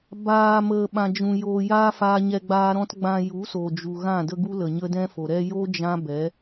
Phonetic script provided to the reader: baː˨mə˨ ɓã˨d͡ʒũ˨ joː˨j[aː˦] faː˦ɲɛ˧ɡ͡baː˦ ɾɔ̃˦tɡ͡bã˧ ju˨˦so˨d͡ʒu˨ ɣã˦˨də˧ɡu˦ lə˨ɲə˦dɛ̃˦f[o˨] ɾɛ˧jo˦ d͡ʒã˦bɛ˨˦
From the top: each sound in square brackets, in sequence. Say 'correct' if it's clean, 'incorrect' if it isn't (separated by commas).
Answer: correct, correct